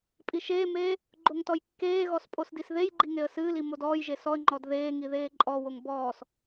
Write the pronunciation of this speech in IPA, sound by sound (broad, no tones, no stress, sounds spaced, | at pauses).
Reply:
pʼ i ʃ eː m eː | ɡ͡ǃ o ŋ t ɔ j kː eː ɣ ɔ s pʼ o s d i s ð e j ɡ͡ǃ i ŋ e ə̯ s ɨː l i m o d ɔː j ʒ e s ɔ ə̯ ŋ͡ǃ ɔ d ð eː ŋ i ð eː ǃʼ ɔ w o ŋ b ɔː s